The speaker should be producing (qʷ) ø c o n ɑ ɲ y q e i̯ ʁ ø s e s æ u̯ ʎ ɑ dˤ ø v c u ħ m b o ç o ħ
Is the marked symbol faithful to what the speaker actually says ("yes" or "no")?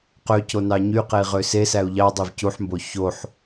no